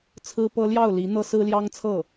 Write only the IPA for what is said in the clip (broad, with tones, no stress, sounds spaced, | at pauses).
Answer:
t͡sʰ ɹ̩˥ p ɤ˥ l j ɑ˥˩ ʊ̯ l i˧˥ n̪ ɤ˥ s ɹ̩˥ l j ɑ˥ ŋ t͡sʰ ɤ˥˩